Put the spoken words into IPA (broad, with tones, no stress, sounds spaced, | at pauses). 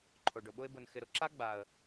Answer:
ǃʰ o˨ ɖ ʊ˨ ɓ ʊ˧ ɪ̯ b ʊ˨ n x ɪ˨ ɾ ʊ˧ ǁ a˦ ɡ͡b a˨ ə̯